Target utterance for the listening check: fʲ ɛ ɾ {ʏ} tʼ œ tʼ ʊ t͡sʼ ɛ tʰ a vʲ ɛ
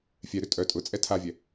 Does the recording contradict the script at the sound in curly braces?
no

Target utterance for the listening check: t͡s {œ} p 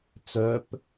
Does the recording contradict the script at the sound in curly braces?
no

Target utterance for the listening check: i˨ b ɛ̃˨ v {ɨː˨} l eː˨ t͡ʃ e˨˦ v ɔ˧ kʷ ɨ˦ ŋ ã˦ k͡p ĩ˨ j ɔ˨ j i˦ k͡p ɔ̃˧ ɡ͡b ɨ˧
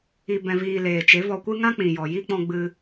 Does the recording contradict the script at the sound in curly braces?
yes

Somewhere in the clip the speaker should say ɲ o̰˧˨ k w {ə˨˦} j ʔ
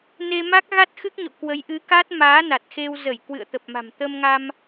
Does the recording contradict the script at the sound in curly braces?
no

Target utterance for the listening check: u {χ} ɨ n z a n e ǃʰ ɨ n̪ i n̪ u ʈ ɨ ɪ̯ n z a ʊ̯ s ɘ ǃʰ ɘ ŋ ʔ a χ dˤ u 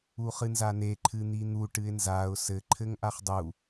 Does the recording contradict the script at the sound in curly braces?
no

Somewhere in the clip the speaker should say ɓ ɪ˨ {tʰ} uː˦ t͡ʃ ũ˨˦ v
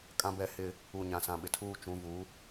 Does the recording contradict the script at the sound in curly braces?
no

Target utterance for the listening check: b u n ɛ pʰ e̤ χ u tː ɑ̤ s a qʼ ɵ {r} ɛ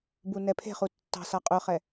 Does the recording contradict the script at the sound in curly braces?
yes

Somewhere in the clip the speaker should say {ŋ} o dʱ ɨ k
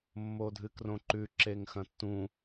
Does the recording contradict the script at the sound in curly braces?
yes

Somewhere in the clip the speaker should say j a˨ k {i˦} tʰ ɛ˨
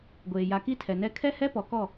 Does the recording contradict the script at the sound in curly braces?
no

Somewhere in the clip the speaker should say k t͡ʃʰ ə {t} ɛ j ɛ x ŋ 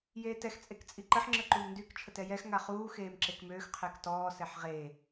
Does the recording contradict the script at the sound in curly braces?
no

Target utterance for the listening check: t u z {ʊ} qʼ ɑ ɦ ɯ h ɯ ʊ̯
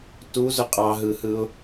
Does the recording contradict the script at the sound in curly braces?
no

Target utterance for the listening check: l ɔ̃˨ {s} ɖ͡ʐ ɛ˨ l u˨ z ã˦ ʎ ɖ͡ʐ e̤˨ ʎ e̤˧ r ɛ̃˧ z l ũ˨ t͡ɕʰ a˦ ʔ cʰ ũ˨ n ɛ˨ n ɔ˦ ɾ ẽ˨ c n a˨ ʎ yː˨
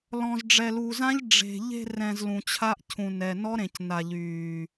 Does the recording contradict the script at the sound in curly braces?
yes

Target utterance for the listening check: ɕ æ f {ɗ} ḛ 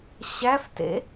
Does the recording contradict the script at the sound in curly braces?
yes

